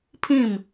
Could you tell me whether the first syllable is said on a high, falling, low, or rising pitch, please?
falling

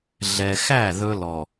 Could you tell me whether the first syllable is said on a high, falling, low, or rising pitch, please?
low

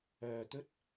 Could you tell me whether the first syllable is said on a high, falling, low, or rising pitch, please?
low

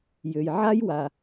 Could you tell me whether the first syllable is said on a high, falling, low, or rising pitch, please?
low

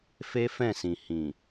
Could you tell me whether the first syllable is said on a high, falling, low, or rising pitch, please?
high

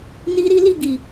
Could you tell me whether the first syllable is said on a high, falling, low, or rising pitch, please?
high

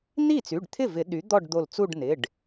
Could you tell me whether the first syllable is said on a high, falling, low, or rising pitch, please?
falling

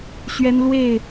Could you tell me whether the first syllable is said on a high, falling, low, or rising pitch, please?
high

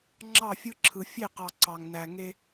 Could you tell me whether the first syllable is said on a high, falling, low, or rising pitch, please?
falling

